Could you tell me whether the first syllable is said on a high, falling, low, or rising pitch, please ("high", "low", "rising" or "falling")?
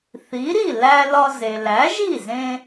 rising